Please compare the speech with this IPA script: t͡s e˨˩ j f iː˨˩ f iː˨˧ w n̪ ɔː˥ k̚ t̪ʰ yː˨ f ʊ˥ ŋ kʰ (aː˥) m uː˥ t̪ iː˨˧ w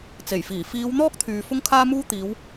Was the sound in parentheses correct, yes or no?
yes